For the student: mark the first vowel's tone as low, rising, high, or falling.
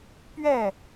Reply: falling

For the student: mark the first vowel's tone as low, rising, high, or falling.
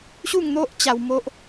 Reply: falling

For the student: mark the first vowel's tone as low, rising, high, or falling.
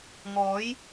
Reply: rising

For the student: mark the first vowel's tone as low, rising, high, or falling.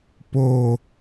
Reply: falling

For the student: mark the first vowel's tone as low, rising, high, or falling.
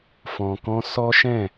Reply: low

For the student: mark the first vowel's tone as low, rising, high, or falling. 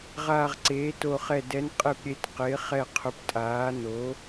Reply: falling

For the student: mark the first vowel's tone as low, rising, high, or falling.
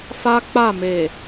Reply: high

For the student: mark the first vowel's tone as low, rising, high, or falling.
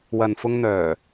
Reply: low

